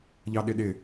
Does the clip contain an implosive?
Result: yes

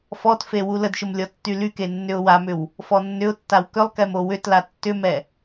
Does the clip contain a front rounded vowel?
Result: yes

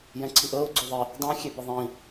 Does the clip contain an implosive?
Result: no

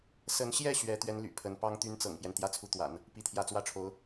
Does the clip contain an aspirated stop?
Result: yes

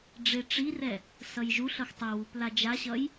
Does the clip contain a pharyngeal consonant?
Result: no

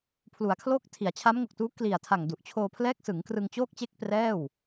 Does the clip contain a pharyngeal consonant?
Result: no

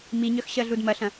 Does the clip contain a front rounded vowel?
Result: yes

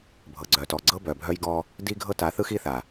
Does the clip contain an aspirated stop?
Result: no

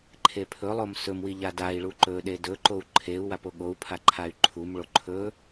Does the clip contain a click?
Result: yes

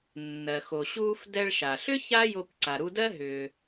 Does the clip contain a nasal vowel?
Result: no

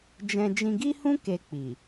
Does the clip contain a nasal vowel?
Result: yes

